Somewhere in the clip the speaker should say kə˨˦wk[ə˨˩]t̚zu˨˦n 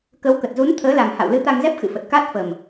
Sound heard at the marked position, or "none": ə˨˩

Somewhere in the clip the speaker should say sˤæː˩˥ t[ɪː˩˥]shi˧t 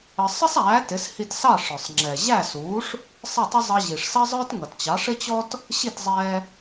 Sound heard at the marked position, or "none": ɪ˩˥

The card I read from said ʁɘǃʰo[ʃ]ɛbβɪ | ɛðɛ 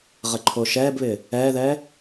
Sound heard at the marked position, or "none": ʃ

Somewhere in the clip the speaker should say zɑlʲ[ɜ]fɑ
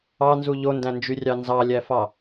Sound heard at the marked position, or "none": æ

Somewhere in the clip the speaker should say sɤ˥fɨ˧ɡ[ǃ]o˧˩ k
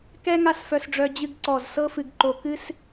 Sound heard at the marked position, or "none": ǃ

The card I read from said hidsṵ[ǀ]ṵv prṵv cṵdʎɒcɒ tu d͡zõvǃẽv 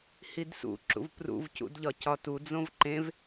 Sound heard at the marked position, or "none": ǁ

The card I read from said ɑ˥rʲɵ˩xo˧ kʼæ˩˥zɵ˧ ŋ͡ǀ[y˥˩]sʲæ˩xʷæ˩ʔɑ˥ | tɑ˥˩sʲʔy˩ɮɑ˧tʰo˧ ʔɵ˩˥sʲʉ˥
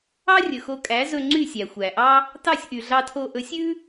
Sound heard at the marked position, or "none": y˥˩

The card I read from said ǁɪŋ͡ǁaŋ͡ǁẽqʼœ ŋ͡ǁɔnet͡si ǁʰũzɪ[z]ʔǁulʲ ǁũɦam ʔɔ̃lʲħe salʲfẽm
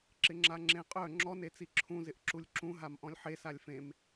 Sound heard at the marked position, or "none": none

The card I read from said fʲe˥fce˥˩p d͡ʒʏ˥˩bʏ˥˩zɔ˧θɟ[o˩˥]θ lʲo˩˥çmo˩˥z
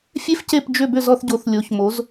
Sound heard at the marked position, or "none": o˩˥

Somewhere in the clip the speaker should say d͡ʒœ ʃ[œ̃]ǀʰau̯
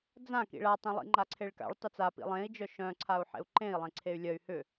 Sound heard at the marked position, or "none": œ̃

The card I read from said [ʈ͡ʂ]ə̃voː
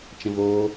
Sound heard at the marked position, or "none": t͡ʃ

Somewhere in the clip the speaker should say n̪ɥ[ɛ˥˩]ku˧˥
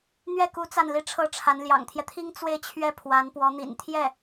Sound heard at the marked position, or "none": ɛ˥˩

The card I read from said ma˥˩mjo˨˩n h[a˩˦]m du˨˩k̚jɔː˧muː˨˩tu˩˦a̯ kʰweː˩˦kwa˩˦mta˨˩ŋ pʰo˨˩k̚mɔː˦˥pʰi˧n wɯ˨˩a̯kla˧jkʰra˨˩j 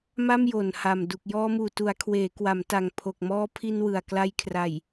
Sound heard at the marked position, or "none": a˨˩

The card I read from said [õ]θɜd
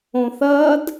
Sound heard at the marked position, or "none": õ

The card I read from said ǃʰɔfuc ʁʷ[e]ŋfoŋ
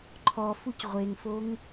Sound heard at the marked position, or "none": e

